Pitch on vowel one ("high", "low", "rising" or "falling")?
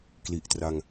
low